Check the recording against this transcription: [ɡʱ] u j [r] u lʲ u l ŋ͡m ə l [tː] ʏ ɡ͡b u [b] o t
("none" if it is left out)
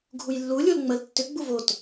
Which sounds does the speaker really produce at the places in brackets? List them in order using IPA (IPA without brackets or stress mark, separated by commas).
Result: ɡʱ, lː, tː, v